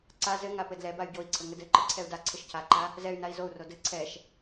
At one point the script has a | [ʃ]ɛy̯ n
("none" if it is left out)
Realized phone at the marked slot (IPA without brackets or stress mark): z